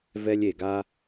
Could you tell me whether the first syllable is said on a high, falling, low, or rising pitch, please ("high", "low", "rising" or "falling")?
high